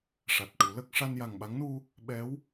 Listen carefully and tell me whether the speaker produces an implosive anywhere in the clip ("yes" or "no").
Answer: yes